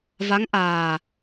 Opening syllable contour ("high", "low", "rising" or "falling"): rising